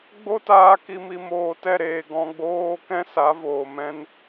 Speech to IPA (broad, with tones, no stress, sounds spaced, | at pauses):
ɡ͡b o˦ t aː˧ k i˧ m i˧ m oː˨ t ɛ˦˨ ɾ eː˨ ɡ ɔ̃˧ ɡ͡b oː˦ k ɛ̃˦ s a˨˦ v oː˨ m ɛ̃˦ n